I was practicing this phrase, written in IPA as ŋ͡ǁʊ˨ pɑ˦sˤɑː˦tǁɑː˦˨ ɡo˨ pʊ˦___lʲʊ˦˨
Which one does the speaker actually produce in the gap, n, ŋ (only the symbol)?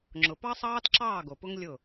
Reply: ŋ